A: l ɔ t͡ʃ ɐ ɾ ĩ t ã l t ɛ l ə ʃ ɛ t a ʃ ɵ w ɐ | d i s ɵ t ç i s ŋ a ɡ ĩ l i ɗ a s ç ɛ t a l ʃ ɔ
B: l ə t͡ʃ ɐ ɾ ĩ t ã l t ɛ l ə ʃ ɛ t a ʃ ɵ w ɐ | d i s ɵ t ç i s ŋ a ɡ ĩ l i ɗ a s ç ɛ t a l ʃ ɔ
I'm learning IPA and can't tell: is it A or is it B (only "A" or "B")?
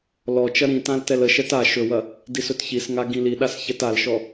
A